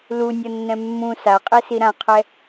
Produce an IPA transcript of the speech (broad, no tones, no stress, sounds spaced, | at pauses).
l u nʲ ʌ nː ɛ̃ mː ũ s a qʼ e s i ɾ ã qʰ ɛ